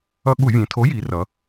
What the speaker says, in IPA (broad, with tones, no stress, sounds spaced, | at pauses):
ʌ˧ ɠ u˧˩˧ vʲ ẽ˩˧ tʰ o˨˥ j i˩˧ r ʌ˩˧